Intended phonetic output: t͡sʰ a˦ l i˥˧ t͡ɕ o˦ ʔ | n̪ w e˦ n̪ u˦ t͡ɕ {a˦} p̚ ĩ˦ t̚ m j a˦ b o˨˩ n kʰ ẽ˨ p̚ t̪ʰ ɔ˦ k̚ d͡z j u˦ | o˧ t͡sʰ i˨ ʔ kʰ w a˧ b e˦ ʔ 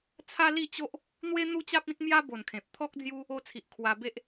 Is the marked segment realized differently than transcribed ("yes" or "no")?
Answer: no